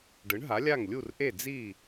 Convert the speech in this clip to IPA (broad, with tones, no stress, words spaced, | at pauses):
ɖɯ˩˥ɳɦa˩˥lʲa˥˩ŋ lʲu˥˩rʔe˥˩ d͡zi˥˩